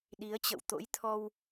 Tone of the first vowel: rising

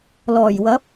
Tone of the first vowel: low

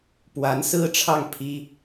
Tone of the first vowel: rising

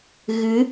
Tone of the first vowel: rising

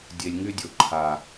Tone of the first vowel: low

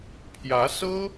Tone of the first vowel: rising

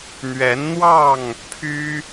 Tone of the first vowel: rising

